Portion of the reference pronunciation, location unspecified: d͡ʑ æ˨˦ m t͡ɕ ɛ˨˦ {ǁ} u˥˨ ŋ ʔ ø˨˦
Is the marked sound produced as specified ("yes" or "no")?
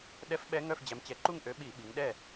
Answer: no